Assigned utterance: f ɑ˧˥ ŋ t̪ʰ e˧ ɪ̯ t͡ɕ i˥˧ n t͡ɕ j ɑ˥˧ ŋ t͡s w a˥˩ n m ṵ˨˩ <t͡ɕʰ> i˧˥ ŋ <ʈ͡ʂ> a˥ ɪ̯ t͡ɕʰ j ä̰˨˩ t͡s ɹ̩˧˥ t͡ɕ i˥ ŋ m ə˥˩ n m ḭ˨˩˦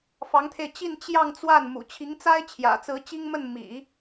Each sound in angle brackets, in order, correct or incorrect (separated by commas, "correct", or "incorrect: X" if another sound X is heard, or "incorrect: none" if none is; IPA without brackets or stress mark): correct, incorrect: t͡s